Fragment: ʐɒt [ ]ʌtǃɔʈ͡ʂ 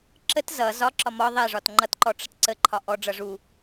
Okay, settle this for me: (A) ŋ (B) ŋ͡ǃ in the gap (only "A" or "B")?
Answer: B